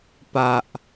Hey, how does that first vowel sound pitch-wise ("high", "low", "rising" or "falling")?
low